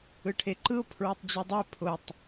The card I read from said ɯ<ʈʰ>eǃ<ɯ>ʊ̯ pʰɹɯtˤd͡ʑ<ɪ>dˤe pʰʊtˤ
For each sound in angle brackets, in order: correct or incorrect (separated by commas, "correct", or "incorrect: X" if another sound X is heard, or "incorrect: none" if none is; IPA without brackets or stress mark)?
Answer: correct, correct, incorrect: i